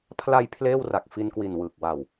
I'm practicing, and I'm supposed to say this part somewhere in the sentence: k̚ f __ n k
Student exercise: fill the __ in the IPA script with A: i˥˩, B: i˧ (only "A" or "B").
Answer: B